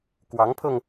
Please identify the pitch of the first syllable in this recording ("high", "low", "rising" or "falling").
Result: rising